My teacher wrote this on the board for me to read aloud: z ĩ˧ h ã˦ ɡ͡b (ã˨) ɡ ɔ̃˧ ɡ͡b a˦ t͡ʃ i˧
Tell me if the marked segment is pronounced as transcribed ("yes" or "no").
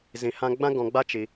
no